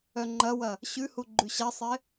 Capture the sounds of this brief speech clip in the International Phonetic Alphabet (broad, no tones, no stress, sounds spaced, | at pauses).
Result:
œ ŋ͡ǃ ɐ w ɐ | ɕ ʉ h u ɡ͡ǃ ʉ ɕ ɐ sˤ ɪ